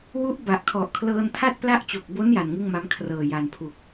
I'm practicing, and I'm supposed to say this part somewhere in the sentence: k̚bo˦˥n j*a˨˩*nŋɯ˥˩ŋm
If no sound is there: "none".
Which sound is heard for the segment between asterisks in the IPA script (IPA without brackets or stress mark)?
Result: a˨˩